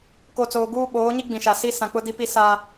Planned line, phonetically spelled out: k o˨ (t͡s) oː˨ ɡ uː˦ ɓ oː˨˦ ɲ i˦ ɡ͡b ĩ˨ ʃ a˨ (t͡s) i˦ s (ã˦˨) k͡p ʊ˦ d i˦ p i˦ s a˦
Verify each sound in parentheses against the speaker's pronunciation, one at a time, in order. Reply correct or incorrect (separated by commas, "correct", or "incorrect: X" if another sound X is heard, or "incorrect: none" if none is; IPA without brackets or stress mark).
correct, incorrect: s, incorrect: ã˨